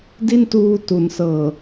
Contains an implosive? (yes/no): no